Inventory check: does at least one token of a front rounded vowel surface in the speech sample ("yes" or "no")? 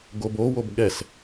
no